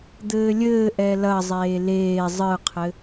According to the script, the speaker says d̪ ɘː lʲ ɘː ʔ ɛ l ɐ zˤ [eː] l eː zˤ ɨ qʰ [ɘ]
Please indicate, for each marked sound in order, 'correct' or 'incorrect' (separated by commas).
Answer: correct, correct